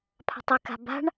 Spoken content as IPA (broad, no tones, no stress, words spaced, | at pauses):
pʰa̤tˤɪka̤ ba̤ɳ